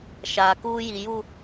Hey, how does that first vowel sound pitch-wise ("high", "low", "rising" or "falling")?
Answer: low